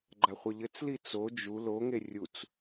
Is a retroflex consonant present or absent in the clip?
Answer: absent